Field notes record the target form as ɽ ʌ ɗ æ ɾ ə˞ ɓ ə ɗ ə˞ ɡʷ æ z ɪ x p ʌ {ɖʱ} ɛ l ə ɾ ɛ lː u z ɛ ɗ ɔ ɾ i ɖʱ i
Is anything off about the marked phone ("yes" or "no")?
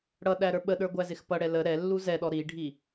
yes